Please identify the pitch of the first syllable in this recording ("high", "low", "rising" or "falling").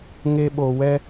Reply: high